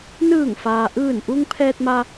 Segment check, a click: absent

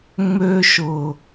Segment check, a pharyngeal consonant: absent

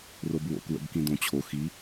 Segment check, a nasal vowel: present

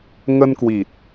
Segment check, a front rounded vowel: absent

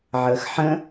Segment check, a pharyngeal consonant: present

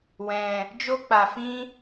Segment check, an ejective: absent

